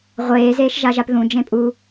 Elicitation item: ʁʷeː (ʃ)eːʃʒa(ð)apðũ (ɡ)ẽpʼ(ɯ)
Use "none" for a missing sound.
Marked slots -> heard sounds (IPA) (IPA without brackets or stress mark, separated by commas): z, ʒ, d͡ʒ, u